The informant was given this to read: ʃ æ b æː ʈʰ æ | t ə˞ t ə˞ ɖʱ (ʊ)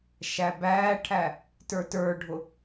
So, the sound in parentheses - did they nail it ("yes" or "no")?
yes